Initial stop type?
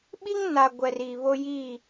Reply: implosive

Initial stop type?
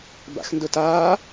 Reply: plain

